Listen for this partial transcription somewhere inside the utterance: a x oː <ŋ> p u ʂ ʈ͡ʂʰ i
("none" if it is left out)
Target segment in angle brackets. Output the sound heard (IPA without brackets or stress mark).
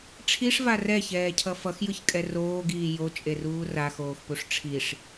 x